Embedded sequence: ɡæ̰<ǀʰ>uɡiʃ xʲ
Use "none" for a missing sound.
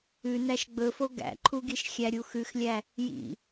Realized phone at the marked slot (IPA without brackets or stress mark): ǃʰ